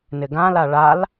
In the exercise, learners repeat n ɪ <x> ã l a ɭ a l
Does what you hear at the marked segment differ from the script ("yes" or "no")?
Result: yes